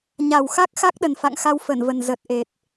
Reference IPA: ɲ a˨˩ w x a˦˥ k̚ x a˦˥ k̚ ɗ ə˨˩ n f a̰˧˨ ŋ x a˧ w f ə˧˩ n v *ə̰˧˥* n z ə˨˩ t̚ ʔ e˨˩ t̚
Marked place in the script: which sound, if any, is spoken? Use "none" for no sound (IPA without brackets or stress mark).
ə˨˩